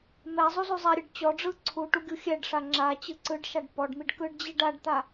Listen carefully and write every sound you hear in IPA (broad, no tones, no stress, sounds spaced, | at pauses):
m ɛ zˤ u z u zˤ ɛ ɾʲ ɯ ɖ t͡ɕ ɔ ɖ͡ʐ ɯ ǀʰ u ʈ u ɡʲ u xʲ ɛ ɖ ʂ a ŋ͡ǁ a t͡ɕ ɯ ǀ ɯ ɖ ʃ a ɖ p ɔ ɖ m i ɖ k ɯ ɖ d͡ʑ i ɖ a ɖ t̪ a